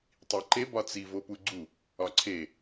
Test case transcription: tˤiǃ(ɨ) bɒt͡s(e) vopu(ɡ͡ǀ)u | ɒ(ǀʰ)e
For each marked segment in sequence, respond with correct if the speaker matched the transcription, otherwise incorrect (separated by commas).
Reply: incorrect, incorrect, correct, correct